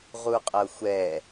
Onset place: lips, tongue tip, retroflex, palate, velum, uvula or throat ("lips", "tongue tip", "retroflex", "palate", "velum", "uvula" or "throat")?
uvula